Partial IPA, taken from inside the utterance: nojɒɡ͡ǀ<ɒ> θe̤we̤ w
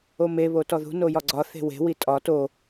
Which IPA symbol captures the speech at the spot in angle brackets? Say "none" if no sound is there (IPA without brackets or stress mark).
ɒ